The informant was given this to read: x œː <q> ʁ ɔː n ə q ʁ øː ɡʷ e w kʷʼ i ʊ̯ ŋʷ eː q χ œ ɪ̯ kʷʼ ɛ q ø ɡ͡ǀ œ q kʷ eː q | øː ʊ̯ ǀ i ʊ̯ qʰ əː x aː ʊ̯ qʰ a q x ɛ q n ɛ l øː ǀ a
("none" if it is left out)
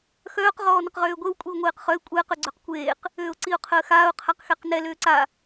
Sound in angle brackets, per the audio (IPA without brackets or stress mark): q